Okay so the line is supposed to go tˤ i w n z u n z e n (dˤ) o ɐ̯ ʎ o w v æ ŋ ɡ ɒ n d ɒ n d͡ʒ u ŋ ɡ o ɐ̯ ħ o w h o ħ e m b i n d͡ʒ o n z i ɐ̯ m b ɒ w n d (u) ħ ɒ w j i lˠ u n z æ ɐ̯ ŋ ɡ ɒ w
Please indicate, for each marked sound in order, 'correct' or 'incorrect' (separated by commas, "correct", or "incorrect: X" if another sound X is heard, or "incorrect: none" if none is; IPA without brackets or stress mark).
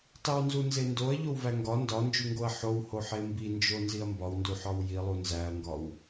incorrect: d, correct